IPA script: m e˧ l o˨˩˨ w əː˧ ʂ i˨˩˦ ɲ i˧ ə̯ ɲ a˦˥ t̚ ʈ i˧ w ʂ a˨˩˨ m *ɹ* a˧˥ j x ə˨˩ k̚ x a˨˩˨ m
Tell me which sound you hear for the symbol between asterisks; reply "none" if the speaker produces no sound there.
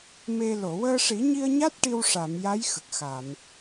j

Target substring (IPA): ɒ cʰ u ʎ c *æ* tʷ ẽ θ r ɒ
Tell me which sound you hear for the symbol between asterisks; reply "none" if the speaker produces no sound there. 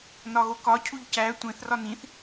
æ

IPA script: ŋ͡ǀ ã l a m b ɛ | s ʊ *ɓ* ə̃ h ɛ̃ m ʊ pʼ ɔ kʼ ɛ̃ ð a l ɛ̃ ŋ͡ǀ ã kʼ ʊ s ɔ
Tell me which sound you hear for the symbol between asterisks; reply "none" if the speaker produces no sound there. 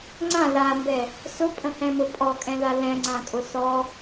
pʼ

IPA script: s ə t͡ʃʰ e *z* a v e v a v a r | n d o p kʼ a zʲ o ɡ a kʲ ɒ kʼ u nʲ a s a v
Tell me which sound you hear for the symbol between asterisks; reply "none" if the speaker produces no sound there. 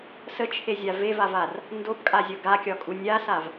zʲ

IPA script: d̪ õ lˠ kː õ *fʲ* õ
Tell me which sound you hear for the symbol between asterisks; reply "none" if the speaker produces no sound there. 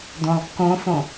f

